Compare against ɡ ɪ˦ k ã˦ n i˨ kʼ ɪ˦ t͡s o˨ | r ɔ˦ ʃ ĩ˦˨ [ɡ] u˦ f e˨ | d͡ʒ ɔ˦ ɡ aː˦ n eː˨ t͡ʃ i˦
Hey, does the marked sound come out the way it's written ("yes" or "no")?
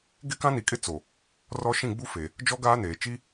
no